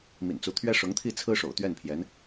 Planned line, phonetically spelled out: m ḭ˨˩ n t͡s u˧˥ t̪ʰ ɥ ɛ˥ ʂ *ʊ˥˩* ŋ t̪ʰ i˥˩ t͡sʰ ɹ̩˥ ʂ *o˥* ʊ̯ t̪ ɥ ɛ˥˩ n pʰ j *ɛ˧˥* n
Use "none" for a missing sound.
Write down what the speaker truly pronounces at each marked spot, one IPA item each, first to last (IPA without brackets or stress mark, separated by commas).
ʊ˧˥, o̰˨˩, ɛ˧˥